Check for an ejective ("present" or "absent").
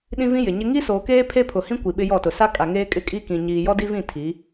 present